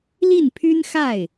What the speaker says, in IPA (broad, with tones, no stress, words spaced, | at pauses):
li˥˩npʰy˥nxa˥˩ɪ̯